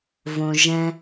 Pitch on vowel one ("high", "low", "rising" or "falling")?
low